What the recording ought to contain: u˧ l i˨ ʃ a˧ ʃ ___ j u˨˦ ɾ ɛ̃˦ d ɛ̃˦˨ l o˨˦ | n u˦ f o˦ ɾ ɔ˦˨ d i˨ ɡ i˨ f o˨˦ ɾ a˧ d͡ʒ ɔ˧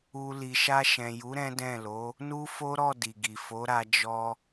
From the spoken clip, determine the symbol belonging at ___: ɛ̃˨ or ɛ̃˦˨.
ɛ̃˨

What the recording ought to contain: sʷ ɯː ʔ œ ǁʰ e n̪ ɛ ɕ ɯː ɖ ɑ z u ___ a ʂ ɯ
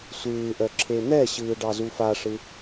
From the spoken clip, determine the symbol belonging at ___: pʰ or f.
f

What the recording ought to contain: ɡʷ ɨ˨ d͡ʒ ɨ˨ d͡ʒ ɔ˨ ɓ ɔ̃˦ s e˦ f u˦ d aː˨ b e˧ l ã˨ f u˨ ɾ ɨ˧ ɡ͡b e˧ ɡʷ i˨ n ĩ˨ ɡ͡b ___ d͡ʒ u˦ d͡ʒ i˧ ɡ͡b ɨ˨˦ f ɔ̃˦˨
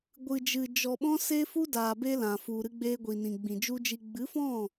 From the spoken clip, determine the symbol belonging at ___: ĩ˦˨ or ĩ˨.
ĩ˨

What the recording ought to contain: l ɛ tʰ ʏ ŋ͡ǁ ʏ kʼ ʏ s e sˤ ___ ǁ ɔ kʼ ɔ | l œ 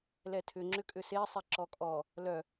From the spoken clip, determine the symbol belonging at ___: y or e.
e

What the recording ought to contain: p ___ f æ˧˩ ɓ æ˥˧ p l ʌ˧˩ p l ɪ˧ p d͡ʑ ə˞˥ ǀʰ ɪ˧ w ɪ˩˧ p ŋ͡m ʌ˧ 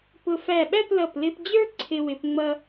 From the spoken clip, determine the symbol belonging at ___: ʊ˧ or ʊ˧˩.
ʊ˧˩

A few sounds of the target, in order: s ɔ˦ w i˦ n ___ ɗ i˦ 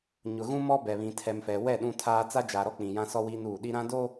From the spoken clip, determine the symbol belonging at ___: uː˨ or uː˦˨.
uː˦˨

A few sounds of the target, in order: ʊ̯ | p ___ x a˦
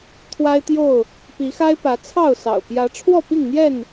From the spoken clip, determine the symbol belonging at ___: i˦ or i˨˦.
i˨˦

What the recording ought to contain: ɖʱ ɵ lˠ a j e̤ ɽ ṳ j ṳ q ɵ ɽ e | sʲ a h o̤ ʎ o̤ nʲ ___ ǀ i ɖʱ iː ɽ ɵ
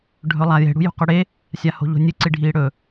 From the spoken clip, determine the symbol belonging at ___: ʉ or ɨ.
ɨ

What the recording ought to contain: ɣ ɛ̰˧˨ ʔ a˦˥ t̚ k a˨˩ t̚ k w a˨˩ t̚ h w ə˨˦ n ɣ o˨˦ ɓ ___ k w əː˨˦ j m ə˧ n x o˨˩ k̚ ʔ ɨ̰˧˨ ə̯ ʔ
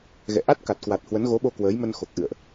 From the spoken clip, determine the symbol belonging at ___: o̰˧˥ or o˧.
o˧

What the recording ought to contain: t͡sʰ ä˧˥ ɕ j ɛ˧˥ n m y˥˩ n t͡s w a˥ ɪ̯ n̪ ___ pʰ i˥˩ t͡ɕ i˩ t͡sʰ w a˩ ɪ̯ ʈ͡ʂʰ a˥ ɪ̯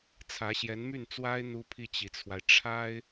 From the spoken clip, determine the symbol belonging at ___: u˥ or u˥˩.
u˥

